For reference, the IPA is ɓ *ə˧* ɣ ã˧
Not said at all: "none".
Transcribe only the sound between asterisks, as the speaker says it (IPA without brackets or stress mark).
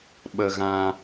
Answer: ə˧